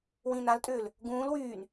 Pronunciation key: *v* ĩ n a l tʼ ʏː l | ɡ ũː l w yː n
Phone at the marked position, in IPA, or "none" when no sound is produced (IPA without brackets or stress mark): w